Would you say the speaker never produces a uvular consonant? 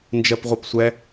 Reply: no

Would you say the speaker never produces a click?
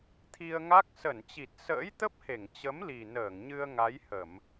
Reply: yes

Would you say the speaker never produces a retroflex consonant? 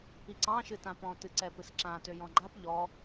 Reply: yes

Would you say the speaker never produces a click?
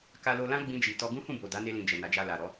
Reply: yes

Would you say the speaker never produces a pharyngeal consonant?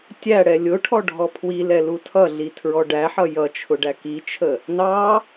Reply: no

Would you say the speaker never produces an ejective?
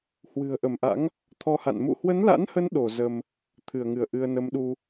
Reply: yes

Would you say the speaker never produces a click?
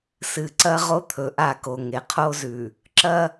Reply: no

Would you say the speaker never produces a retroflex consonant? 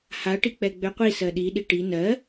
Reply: no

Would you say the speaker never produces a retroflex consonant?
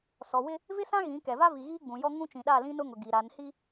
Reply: yes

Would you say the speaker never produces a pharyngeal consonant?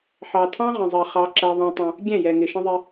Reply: no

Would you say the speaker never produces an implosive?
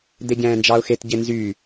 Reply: yes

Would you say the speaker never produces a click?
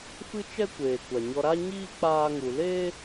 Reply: yes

